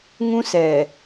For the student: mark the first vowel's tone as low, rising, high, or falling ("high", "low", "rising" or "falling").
high